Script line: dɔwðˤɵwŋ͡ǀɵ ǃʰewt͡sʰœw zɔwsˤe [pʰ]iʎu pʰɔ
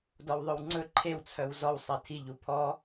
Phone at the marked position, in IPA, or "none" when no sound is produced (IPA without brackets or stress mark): tʰ